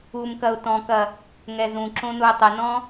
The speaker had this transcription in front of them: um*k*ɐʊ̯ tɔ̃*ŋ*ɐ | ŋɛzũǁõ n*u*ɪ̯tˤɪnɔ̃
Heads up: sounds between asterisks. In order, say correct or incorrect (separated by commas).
correct, incorrect, correct